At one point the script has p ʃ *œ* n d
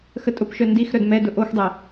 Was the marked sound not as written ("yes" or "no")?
no